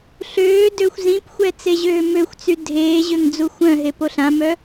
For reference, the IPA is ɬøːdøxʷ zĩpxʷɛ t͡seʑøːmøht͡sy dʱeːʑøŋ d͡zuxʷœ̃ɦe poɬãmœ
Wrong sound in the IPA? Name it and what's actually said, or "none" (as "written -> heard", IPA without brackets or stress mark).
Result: h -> xʷ